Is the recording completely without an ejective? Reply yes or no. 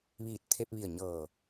yes